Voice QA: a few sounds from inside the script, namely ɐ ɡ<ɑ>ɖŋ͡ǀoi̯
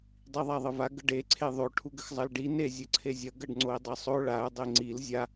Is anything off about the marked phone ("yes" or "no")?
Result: yes